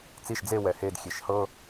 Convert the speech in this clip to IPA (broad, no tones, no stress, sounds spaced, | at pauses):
t͡s i ʃ d͡z e w ɛ h e d xʲ e ʃ h ɤ